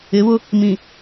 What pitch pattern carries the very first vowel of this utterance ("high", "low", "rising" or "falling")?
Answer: rising